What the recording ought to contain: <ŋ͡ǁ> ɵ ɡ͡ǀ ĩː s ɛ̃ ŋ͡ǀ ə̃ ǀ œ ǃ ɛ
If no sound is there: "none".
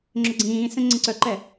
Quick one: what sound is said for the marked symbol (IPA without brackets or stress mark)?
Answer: ŋ͡ǁ